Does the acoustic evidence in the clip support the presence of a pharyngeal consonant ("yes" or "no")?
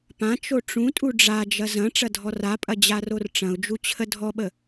no